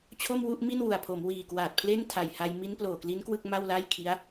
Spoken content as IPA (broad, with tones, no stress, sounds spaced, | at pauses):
t͡ɕʰ o˥˩ m w u˥˩ ʔ m i˥˩ n w u˨˩ a̯ pʰ o˩˦ m w iː˨˩ k w aː˨˩ t̚ pʰ l e˥˩ n tʰ a˨˩ j h a˧ j m i˦˥ n p l oː˨˩ k l i˦˥ n k w ɯ˥˩ k̚ m a˥˩ w l a˥˩ j kʰ i˦˥ a̯